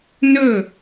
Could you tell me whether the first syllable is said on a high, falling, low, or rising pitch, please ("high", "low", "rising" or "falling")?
falling